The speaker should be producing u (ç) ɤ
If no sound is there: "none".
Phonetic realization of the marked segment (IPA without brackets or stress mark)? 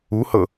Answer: h